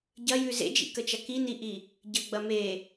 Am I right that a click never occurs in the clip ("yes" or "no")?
yes